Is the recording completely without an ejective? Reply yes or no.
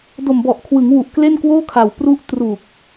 yes